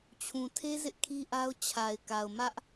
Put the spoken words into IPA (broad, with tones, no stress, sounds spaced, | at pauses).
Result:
t͡ɕʰ ũ˨ tʰ e˦ z ɪ˦ ʔ kʰ i˦ ʔ a˦ ʊ̯ t͡ɕʰ a˨ ɪ̯ k a˨ ʊ̯ m ä˦ ʔ